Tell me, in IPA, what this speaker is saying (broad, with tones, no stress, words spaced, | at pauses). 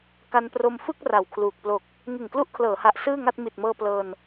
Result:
ka˧npro˧mfɯ˥˩k̚ ra˨˩wkʰluː˨˩k̚ plo˨˩k̚ | ŋɯ˨˩ŋklu˦˥ʔkʰlɤː˩˦ha˨˩ʔ sɯː˥˩ŋa˥˩t̚ mi˨˩t̚mɤː˧ plɤː˧n